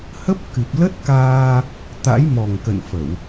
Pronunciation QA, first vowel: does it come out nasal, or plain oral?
oral